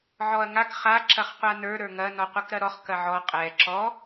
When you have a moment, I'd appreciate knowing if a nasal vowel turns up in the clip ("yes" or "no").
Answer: no